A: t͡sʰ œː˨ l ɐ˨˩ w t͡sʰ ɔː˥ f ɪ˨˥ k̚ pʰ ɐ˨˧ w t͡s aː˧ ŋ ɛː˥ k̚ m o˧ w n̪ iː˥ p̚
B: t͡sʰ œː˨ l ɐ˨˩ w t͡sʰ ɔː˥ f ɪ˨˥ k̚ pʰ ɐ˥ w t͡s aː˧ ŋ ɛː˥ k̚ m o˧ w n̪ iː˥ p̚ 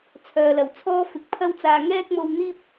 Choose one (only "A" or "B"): B